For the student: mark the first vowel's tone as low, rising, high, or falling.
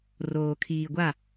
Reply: low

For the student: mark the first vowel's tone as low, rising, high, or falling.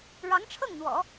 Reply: rising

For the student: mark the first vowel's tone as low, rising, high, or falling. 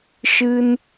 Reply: high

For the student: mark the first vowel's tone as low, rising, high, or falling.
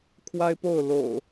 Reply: high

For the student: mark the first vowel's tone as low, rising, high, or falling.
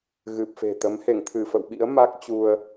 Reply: low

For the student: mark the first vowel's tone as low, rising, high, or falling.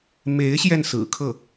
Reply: rising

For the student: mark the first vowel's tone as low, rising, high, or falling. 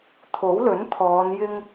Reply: rising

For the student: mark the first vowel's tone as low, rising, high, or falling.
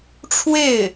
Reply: falling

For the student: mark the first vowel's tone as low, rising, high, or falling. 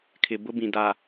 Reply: low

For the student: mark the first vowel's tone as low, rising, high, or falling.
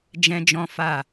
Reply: high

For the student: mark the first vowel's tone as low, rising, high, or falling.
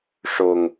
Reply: low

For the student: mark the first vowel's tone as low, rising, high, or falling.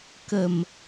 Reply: low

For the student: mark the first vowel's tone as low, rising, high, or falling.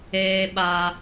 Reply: high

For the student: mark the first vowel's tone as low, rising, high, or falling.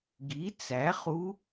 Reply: rising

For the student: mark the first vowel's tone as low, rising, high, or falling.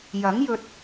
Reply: rising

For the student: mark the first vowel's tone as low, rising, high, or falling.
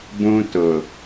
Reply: high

